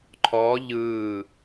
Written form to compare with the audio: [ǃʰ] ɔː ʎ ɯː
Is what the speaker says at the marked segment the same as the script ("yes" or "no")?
yes